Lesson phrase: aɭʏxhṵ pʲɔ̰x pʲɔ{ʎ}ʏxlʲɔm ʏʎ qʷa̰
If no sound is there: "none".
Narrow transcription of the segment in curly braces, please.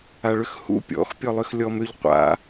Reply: lˠ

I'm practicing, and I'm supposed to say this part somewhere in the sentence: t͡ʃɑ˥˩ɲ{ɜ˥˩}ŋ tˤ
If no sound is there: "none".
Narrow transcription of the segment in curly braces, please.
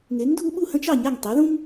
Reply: æ˥˩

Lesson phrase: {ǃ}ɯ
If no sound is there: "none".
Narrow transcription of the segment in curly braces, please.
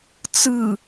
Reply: t͡s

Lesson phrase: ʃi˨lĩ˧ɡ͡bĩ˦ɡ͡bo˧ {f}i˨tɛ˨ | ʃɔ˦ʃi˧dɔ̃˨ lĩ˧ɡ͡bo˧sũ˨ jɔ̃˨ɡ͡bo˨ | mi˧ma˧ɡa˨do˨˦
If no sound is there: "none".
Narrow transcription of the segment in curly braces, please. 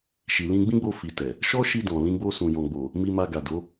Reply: f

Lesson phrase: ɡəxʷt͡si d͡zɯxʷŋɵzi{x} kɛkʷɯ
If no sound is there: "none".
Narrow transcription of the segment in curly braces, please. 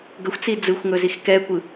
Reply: x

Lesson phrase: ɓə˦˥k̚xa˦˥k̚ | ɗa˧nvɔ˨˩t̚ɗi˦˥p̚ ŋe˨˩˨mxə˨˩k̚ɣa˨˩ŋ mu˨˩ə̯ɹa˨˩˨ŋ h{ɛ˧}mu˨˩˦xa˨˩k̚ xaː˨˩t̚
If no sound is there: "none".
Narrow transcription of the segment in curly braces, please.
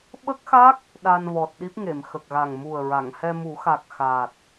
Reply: ɛ˧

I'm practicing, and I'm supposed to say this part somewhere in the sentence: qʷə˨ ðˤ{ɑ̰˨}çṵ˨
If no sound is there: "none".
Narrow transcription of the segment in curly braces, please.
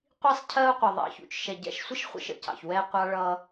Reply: ɑ̰˨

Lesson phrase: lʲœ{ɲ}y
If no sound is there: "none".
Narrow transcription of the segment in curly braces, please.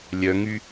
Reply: ŋ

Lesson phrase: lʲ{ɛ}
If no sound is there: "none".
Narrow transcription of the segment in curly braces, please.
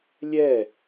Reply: ɛ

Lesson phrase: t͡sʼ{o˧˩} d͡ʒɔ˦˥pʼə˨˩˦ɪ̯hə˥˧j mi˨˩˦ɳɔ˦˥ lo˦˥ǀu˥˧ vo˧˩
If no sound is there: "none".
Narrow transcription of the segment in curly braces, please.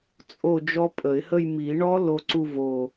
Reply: o˥˧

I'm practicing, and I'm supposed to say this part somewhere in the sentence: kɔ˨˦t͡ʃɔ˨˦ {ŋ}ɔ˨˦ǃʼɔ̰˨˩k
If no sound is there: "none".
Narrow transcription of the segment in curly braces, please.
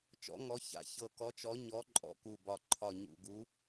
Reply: ɲ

